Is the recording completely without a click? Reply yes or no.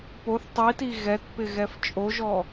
yes